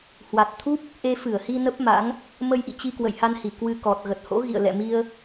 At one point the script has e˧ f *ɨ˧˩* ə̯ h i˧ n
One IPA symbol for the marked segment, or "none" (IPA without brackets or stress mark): ɨ˧˩